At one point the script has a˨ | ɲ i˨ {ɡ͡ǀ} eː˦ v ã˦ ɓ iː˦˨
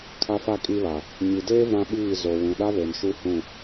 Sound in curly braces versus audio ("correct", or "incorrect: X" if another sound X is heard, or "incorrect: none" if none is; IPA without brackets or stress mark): incorrect: d